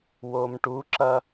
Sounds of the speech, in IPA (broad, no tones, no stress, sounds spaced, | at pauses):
w o m ʈ u ǁ ɐ